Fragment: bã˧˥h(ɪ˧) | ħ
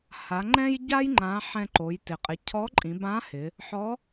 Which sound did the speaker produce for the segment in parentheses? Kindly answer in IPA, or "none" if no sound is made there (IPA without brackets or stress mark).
ɪ˩˧